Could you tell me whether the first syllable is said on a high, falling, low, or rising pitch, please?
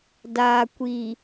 low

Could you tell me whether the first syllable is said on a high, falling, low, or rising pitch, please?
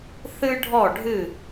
high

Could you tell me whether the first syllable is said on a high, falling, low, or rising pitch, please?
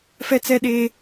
high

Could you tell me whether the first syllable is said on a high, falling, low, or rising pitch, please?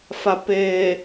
low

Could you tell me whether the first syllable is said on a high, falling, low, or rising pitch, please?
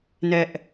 high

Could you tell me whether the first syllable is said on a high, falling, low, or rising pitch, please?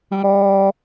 high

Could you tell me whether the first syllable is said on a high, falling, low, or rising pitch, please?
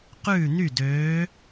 falling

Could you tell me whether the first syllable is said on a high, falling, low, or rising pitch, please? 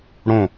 falling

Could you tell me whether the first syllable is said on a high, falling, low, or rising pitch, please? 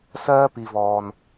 high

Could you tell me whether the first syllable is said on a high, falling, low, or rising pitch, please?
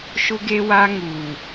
high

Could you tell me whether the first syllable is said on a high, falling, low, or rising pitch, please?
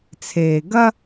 low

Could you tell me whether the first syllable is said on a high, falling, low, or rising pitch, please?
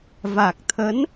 low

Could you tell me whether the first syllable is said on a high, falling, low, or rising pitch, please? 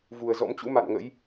low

